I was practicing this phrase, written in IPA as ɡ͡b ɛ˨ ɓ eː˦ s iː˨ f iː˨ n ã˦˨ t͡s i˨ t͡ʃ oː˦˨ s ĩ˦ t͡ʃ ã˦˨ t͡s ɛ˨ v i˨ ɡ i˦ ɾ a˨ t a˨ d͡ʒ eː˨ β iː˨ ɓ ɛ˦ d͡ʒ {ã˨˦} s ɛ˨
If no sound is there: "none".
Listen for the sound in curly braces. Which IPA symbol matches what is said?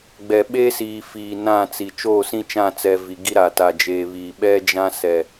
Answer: ã˦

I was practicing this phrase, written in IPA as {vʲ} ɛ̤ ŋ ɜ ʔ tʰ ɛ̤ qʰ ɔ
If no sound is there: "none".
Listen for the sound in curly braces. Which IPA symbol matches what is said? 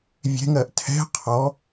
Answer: vʲ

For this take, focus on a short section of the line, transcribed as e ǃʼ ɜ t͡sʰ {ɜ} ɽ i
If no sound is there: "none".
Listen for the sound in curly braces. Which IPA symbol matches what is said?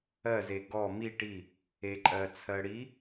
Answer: ɜ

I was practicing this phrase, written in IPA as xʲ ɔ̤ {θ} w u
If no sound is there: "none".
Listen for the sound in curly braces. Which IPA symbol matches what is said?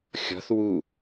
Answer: θ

